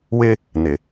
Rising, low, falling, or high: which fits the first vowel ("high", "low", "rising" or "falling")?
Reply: high